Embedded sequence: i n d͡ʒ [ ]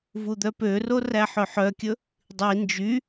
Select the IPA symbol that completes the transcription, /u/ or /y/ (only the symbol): y